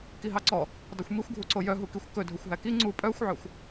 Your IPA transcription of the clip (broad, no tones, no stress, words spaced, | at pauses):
kiɦɑǀɔ | dˤuxʷmixʷɡʱuǀo jœɦukixʷ kɵ dʱɵxʷɦæki ŋ͡ǀu pʼœxʷʕœxʷ